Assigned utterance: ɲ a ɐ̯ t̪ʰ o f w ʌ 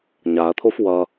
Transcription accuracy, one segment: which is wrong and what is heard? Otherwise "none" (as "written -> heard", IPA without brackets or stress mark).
none